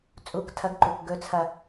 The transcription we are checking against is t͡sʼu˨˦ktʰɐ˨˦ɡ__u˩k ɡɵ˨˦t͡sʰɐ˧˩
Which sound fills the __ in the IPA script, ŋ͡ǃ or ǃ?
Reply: ǃ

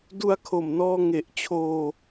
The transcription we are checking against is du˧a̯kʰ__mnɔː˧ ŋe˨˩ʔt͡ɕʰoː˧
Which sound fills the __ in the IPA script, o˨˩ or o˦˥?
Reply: o˨˩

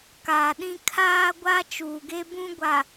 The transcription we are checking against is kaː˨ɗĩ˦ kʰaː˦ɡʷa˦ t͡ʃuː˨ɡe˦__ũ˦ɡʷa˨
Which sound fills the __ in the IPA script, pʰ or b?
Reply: b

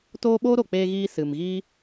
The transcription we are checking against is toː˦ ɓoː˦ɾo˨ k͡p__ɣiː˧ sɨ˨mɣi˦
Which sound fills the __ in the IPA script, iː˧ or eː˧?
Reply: eː˧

